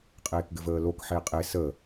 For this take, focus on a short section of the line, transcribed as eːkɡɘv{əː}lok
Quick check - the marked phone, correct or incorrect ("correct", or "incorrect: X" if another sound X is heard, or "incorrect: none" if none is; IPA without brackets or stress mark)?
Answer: correct